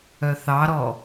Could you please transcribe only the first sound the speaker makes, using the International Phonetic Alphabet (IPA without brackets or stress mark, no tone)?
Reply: œ